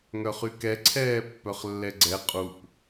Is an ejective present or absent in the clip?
present